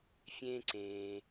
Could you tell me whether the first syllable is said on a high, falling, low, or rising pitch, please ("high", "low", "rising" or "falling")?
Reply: high